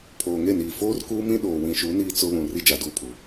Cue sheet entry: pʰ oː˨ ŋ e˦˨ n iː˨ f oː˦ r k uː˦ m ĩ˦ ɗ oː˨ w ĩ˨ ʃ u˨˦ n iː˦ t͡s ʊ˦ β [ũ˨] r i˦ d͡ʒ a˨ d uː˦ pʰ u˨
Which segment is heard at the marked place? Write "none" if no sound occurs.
ũ˨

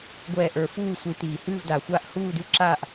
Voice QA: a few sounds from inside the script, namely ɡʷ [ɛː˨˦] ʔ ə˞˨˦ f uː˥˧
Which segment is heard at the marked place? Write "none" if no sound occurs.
ɛː˥˧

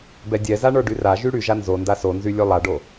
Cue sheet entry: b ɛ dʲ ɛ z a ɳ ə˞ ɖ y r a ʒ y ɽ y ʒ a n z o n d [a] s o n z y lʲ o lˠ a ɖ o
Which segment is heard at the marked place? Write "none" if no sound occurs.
a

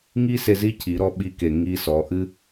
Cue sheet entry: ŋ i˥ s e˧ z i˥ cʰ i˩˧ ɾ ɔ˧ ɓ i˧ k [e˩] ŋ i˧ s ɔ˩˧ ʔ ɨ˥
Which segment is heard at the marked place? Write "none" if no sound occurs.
e˩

